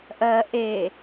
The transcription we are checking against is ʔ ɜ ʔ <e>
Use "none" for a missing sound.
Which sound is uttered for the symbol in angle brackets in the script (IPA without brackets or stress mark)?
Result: e